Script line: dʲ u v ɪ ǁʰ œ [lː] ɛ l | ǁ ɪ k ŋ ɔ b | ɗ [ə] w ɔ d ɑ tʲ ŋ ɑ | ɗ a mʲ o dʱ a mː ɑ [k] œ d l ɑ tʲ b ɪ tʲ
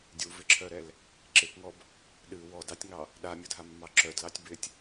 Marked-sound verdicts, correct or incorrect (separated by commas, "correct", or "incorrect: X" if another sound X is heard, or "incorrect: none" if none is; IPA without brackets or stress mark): incorrect: ɾ, incorrect: ɨ, incorrect: ǁ